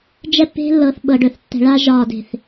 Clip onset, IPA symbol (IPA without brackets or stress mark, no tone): d͡ʒ